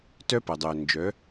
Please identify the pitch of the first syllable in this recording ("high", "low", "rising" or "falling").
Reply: high